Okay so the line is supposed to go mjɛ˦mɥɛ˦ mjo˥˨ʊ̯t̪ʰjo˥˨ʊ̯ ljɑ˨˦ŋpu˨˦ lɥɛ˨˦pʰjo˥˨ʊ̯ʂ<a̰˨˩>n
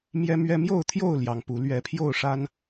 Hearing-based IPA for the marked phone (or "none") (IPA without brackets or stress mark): a˦